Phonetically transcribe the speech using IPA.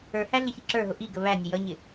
ə˞ h æ ɮ ɪ ç i ǁ ə˞ ɦ ʊ ʔ i ɡ ə β æ nʲ ə j ʌ ɲ ɪ

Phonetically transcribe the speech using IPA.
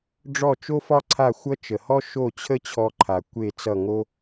ɖ͡ʐ ɔ˥˩ t͡ʃ o˥ f ɒ˥ ǀʰ a˥˩ xʷ ʌ˥ t͡ʃ ə˩ h ɔ˥ ʃ o˥˩ t͡ɕʰ ə˥ t͡ɕʰ ɔ˧ ǃʰ a˩ kʷ e˥˩ t͡s ʌ˥˩ ŋ o˥

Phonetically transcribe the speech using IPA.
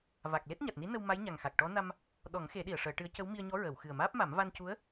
v a˨˩ k̚ l e˦˥ t̚ ɲ a˨˩ t̚ n i˧˥ n ə˧ w m a˧˥ j ɲ a˨˩ ŋ x a˨˩ k̚ ʈ ɔ˧˥ n a˧ m | ɗ ɔ˨˩˦ ŋ x e˨˩˦ ɗ i˨˩˨ ə̯ ʂ əː˨˩˦ ʈ ɨ˧˥ ə̯ c ə˧˥ w m i˧ ə̯ ɲ ɔ˧˥ ɹ əː˨˩˨ w x ɨ˨˩ ə̯ m aː˦˥ p̚ m a˨˩˦ m v a˧ n c u˧˥ ə̯

